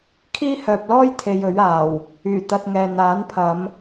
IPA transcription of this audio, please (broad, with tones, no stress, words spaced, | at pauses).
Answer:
kʰiː˥hœː˨p̚lɔː˥jt̪ʰe˨j ɵ˨˥ɥaː˨˩w | yː˨˩ t̪ɐ˧t̚ŋɛː˨ n̪aː˨˥npʰɐ˨˧m